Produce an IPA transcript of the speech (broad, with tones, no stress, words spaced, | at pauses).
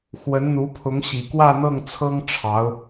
xwə˧˥nn̪u˧˥pʰʊ˧˥ŋ ɕi˨˩kwä˥˧n̪ɤ˥˩ŋt͡sʰɤ˥ŋ ʈ͡ʂʰɑ˧˥ʊ̯